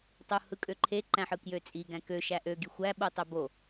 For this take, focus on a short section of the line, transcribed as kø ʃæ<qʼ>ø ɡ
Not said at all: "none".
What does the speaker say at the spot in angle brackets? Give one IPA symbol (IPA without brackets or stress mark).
ʔ